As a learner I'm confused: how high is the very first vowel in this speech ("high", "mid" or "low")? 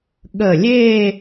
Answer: mid